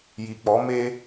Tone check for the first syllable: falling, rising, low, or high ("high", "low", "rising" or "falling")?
low